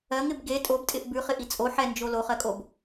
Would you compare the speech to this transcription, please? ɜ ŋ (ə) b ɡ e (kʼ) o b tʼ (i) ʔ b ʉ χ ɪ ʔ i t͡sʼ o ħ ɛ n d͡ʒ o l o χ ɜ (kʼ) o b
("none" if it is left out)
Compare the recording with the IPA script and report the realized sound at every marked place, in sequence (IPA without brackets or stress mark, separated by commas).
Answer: ɪ, tʼ, ɪ, kʼ